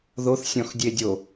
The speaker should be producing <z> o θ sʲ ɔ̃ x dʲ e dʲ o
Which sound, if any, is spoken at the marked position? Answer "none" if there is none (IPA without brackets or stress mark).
ð